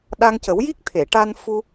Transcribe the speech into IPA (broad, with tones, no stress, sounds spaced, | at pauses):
ɗ a˧ ŋ c ə˨˩˦ w j i˦˥ k̚ t̪ʰ e˨˩˨ ʈ a˧ n f u˧